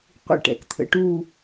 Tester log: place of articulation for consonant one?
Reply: uvular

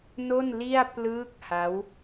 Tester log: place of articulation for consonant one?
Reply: alveolar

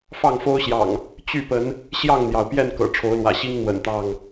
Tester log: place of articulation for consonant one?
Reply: labial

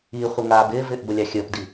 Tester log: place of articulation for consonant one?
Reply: uvular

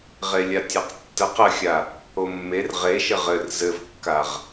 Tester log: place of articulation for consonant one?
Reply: uvular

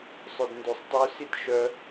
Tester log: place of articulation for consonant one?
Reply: alveolar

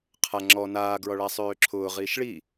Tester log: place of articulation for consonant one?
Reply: uvular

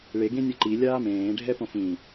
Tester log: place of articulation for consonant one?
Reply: retroflex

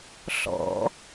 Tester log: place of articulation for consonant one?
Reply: alveolar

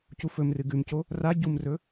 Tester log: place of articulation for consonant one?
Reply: palatal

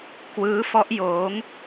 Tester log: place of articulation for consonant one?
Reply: velar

